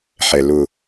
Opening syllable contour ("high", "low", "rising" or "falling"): low